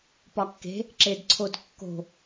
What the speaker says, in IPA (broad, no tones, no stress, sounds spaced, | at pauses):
p ɒ kː e̤ | ǁ e d ǀʰ o d kː o̤